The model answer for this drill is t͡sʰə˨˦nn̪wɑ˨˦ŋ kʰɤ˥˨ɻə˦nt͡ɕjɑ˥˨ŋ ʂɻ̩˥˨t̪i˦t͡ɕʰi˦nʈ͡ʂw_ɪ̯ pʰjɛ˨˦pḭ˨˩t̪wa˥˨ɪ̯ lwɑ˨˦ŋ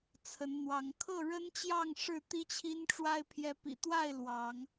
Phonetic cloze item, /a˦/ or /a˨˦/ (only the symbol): a˦